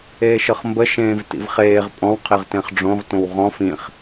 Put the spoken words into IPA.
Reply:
eː ʃ ɤ χ m b ə ʃ ẽː v t ḭ v χ eː ʁ pʼ ɔ̃ w qʰ e ʁ t ẽ χ ɖ͡ʐ õ ʁ t õ w ʁ ɔ̃ f ĩ χ

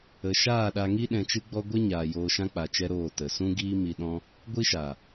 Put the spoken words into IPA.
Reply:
ə˨ ʃ aː˦˨ ɗ a˧ ŋ i˦ ɗ ɛ̃˧ t͡ʃ ɨ˦ ɡ͡b ɔ˦ ɡʷ ɛ˦ ɲ aː˨ j oː˧ ʃ ã˦ k͡p a˧ t͡ʃ ɛ˦ ɾ oː˦˨ t ə˨ s ũ˦ ɡ iː˦ m i˧ ɗ ɔ̃˦ | ɡʷ i˦ ʃ a˨

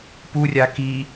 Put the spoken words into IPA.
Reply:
p u rʲ a k i

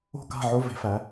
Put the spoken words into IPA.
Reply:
o̤˥˩ k a̤˥˩ ʕ o˧˥˧ v e̤˩˧ f æ˩˧

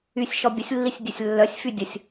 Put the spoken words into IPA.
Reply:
y sʲ ʃ ɔ bʲ ə sʲ lː i sʲ dʲ œ sʲ lː œ sʲ f y dʲ ə sʲ

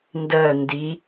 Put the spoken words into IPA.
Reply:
n d ɜ n d i

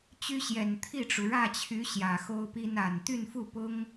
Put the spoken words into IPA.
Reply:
t͡ɕ y˥ ɕ j ɛ˨˩ n t̪ʰ i˥˩ ʈ͡ʂ u˩ ɻ ä˥˩ t͡ɕʰ y˧˥ ɕ j ä˨˩ x o˥ ʊ̯ p i˥ n a˨˩ n t̪ y˥˧ n f u˥˩ p ʊ˥ ŋ

